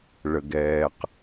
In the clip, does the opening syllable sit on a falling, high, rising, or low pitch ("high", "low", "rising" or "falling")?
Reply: low